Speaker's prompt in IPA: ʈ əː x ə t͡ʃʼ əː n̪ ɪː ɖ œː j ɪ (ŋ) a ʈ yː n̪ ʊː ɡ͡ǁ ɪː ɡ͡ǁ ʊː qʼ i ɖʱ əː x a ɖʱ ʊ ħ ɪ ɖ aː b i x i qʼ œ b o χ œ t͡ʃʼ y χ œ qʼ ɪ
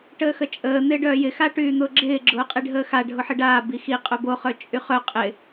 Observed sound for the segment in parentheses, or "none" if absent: x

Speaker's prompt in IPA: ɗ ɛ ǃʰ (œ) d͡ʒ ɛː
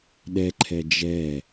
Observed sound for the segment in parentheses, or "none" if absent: ɛ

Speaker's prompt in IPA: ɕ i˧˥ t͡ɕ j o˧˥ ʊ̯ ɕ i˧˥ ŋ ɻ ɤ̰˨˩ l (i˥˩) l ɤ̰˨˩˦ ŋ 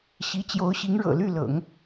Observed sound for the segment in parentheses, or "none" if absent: y˥˩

